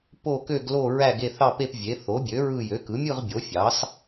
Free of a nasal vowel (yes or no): yes